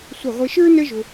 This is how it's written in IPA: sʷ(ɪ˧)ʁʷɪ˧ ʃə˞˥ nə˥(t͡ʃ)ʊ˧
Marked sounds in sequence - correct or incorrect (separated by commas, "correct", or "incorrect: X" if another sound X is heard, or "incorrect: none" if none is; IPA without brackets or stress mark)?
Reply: incorrect: ɪ˧˩, incorrect: ʒ